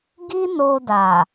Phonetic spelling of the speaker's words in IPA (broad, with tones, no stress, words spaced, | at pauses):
ɡi˦no˧da˨